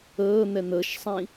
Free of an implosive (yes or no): yes